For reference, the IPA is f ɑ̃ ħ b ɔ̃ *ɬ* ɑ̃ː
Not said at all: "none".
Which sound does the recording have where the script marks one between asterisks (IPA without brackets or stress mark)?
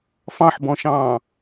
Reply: ʃ